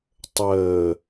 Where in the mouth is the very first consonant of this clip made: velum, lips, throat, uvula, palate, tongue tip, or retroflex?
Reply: tongue tip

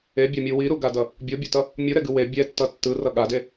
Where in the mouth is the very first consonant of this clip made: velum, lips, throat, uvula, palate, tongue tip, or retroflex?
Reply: lips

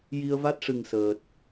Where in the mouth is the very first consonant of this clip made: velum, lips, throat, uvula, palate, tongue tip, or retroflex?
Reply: palate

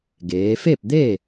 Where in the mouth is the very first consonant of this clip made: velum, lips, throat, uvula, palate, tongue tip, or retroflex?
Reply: velum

